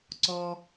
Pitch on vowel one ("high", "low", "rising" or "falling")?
high